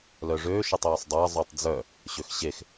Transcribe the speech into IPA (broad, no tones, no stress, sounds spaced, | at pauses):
l œ ʐ ø ʃ ɵ tˤ j ɔ sˤ dˤ e ɐ̯ zˤ y tˤ d͡z œ | ɕ ø x ɕ e x